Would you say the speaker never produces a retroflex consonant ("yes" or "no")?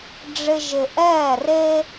no